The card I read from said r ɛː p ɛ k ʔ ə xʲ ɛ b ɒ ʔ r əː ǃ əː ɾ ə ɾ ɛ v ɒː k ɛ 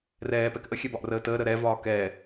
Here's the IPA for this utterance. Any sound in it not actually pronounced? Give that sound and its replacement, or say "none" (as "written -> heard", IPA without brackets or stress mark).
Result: ǃ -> t